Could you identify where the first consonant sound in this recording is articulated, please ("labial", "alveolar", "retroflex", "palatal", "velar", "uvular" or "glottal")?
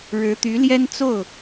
retroflex